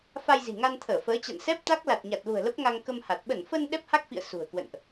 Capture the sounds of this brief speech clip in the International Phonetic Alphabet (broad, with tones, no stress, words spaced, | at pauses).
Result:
fa˧jzi̤˨˩ŋa˧nt̪ʰəː˧˩ fəː˨˦t͡ɕa̰˧˨n sɛ˦˥p̚t̪a˦˥k̚ la˨˩t̚ɲa˨˩t̚lṳ˨˩ə̯ lə˦˥p̚ŋa˧ŋ kə˧mha˨˩t̚ ɓə˧˩nfə˧n ɗɛ˦˥p̚ha˦˥k̚fḭ˧˨ə̯ sṳ˨˩ə̯kwə̰˧˨nʔ